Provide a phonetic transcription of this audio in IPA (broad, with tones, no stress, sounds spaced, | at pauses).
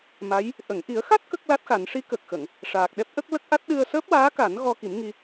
m a˧˥ j | ʔ ə˨˩˨ ŋ ʔ i˨˩˦ ə̯ x a˦˥ t̚ k ə˦˥ k̚ l a˦˥ t̚ x a˨˩˦ n ʂ i˧˥ k ə˨˩ k̚ x ə˨˩˨ ŋ | ʂ aː˨˩ k̚ ɗ ɛ˦˥ p̚ ʔ ə˦˥ k̚ l ə˦˥ k̚ ʔ a˦˥ t̚ ɗ ɨ˧ ə̯ s əː˦˥ p̚ w aː˧˥ k a˨˩˦ n ɣ ɔ˧ k i˨˩˦ m ŋ i˧